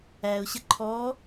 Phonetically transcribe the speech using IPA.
æʊ̯ɕə ǃʰɔ

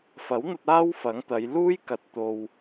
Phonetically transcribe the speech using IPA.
fɐ˨˥wn̪ɐ˧t̚ aː˥wfɐ˨˥ŋt̪ɐ˨˧j luː˥j kɐ˧t̚ t̪o˨w

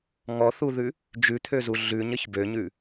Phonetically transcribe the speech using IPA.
ŋɔθuðʉ | d͡ʒʉt̪ʰøzu ɮʉɲəç bøɲʉ

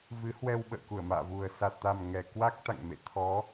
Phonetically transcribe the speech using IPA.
vɨ˨˦hwɛ˧w ɓə̰ː˧˨ku˧˩ə̯ma̰ː˧˨vu˨˩ə̯ sa˨˩t̚t̪a˨˩m ŋɛ˨˩kwa˦˥k̚t̪a̰˧˨ŋ mḛ˧˨ t̪ʰɔ˨˦

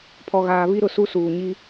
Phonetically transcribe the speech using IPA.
pʰɔ˨ɣaː˨ βi˦ɾʊ˨su˦ suː˨ɲi˦

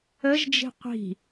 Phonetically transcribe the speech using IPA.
əʒd͡ʒi̤ qʷi̤

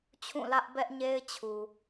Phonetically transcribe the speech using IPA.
t͡ɕʰũ˦˨lä˦ʔbɛ˦ʔɲe˦ɪ̯ t͡ɕʰu˨

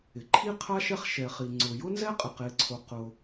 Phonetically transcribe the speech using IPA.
ɪ˩ǃʰi˥qʰa˥ ʃɛ˥χʃɛ˩χi˩ ŋ͡ǀʊ˩jʊ˥nzɛ˥qʼɪ˩ qe˩ǀʰo˩ qʊ˩

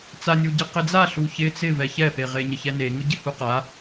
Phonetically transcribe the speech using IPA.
t͡sanʲuɟe qɪd͡za ɬuçɪ t͡sɪ vɛçɛpe ʁeɲɪçɛne ŋʊɟɪhuqa

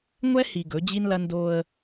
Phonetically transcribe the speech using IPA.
ŋʷɛ˦ hi˨ ɡɵ˨˦d͡ʑi˦nlɐ˦ ndo˦ə̯

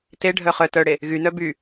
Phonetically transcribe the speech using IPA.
teɖʱœ χœ tœɽe | ɣynœ by

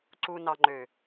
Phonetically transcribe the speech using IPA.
ǀu˨nɑ˨ŋ͡ǃø˨

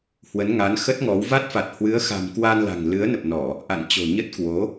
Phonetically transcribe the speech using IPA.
hwə˨˦nŋa˨˦n xə˦˥t̚ŋɔ˨˦w va˦˥t̚fa˨˩t̚ hwɨ˨˦ə̯xa̤˨˩m kwa˧nla̤˨˩ŋlɨ˨˦ə̯nə˨˩p̚ nɔ˧˩˨ | ʔa̰˧˨nt͡ɕo̤˨˩ɲə˦˥t̚ kwo˨˦

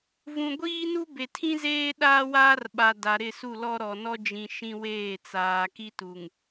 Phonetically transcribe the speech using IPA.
vũ˨ ɡʷiː˦nu˦ be˨tʰĩ˦zeː˦ ɗaː˦waː˦rɓa˨ da˨ ɾɪ˦˨su˦˨lɔ˦ɾɔ˨ nɔ˦d͡ʒĩ˨ ʃĩ˦weː˦˨ t͡saː˨ki˦tu˨ŋ

